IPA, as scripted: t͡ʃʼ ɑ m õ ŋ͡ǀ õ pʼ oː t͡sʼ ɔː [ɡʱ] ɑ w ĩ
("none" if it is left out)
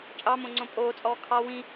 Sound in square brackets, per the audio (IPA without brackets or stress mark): kʰ